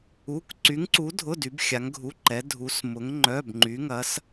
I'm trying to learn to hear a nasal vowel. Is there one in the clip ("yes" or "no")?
no